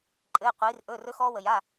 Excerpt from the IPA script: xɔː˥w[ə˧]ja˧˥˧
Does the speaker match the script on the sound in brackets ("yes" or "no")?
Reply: yes